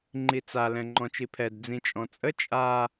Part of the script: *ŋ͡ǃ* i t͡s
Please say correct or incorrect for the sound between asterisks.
correct